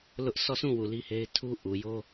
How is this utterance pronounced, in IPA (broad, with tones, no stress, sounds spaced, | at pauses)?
l ʊ˦ ʔ sʰ ɔ˦˨ s ũ˦˨ w u˨ l i˦ h e˦ ɪ̯ tʰ u˦ ʔ u˨ j o˦